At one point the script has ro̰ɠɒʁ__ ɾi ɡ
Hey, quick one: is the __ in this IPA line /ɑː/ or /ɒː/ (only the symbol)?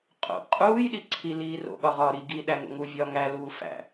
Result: ɒː